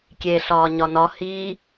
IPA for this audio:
kʲ e ɬ ɒː ɲ ɒ n ɒ h i

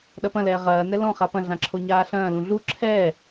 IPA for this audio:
ɗ ɐ p ɐ̃ l ɛː ʁ ɐː n ɛ l ɔ̃ χ a p ɐ̃ ɮ ã ǁʰ o ɲ aː ɬ ɐ̃ː l ũ ɮ u ǁʰ ɛː

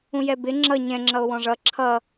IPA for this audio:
ũ j ɛ b ɪ ŋ͡ǁ ʌ ɲ ɛ̃ ŋ͡ǁ ʌ o̯ w ɔ̃ ʐ ʌ ǁʰ ʌ

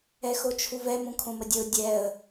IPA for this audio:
ɛ x o t͡ʃʰ u v ɛ m ũ kʰ õ m ə dʲ ə ʊ̯ dʲ ɛ ə̯

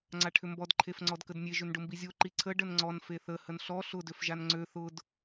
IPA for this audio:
ŋ͡ǀ a ʈʰ ʏ m b ɔ d ǃʰ e f ŋ͡ǀ ɔ d k ə d nʲ e ʒ ʏ n ɖ ʊ m b i zʲ o ǃ i ǀʰ ə ɖ ə n ŋ͡ǀ ɔ n f e θ ə h ə n ɬ ɔ ɬ ʊ d ø f ʒ a n ŋ͡ǀ ø θ ʊ d

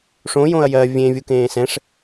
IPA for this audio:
ʂ õ j õ ɐ̯ j ɜ vʲ ẽ vʲ u k ẽː s ɛ̃ ʂ

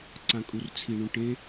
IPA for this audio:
ǀ ã kʼ u r t͡sʰ i ɳ ũ ʈ ẽ

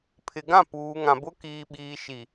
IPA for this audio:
pʰ ɪ˨ ɡ ã˦˨ p uː˨ ŋ ã˨ b ʊ˦ k iː˨ ɓ iː˨ ʃ i˨

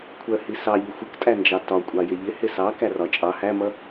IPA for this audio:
kʷʰ ɜ h i s ɑ ʎ ʊ xʷ ɪ k tʼ æ n d͡ʒ ɑ t ɒ kʷʼ ɑ j ɪ ʎ ɪ h ɪ s ɑ k æ r ɒ t͡ʃʼ ɑ h æ m ʌ

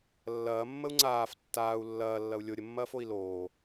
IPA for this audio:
lː ɐː mː ə u̯ ŋ͡ǀ aː f tː aː u̯ lː ɐː lː ɐ u̯ lʲ o ɾʲ ə mː ɐː f o i̯ l oː

